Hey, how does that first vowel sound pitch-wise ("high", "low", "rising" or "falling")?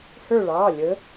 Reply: falling